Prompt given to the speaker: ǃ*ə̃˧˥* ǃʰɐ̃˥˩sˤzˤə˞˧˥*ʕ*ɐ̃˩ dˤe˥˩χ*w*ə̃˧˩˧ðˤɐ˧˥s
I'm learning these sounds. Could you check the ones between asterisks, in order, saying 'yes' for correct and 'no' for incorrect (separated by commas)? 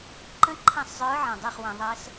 yes, yes, yes